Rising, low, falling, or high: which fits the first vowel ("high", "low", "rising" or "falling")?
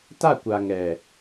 falling